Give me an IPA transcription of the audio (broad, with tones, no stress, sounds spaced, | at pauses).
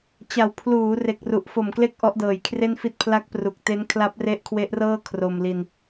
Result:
t͡ɕ a˨˩ w pʰ l uː˩˦ r e˨˩ k̚ r u˨˩ ʔ f o˨˩ m k l e˦˥ k̚ ʔ ɔ˦˥ ʔ d ɤː˨˩ j kʰ r e˥˩ n f i˥˩ t̚ pʰ l a˦˥ k̚ p r u˨˩ k̚ t e˦˥ n kʰ l a˦˥ p̚ r e˦˥ ʔ kʰ w e˦˥ ʔ r ɤː˥˩ kʰ r o˧ m l i˧ n